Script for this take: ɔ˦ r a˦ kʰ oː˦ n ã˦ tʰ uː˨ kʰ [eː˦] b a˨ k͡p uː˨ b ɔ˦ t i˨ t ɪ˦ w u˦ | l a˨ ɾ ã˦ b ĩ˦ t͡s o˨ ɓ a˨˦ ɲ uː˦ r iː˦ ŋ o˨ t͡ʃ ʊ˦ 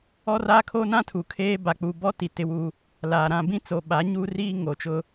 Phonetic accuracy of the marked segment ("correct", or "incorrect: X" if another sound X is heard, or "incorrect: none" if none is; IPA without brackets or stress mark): correct